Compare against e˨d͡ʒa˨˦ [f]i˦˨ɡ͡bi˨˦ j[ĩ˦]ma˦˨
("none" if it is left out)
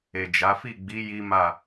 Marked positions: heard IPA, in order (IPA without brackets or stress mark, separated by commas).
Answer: f, i˦